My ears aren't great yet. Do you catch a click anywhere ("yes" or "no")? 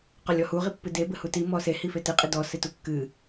no